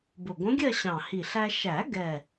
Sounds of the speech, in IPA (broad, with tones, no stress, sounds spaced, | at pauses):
b ʊ˨˩ ɡʷ ə̃˧˥ ɡʲ ɜ˥˧ ɕ ɑ̃˨˩ h i˨˩ ɬ æ˧ ʃ æ˨˩˦ ɡ ɛ˨˩